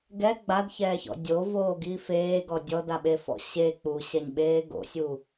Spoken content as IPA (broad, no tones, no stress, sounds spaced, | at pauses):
ɡ ɛ ɡ͡b a d ç ɛː ç ɔ̰ dʲ o v oː ɡ i f eː ɡ ɔ dʲ ɔ d a ɓ e f ɔ̰ ɕ e k͡p u ɕ ɛ ɲ ɓ eː ɡ o̰ sʲ u